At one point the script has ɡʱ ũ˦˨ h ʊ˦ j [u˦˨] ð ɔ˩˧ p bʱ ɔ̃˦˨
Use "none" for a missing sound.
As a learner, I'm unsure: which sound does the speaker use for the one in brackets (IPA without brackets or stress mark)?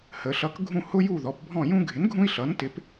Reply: u˦˨